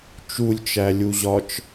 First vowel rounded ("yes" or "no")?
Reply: yes